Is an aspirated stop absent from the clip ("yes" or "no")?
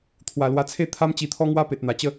no